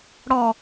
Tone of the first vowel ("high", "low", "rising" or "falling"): low